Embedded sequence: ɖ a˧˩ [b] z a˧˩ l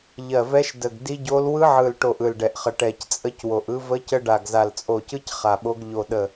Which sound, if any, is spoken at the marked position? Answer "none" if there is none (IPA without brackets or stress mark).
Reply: ɡ